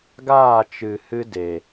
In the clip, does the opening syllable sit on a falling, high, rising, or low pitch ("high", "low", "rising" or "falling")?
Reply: falling